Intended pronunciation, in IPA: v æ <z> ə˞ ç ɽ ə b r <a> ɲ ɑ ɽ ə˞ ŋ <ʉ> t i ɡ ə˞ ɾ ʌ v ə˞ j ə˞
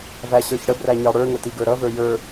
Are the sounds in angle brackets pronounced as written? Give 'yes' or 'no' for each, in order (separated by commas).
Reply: no, no, no